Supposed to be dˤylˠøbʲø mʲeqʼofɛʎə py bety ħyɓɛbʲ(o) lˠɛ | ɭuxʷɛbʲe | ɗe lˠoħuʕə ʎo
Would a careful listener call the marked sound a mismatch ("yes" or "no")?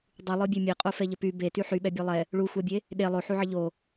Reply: yes